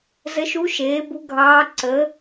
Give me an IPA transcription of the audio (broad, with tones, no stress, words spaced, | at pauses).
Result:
zə˧˥ʃu˧˥ ʃeː˩˥bu˧˥ɡʱɑː˧˥ ǀə˩˥